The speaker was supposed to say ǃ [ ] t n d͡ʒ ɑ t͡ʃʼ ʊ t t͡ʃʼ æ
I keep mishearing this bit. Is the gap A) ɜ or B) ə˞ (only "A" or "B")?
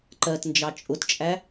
A